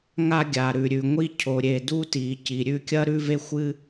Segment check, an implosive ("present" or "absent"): absent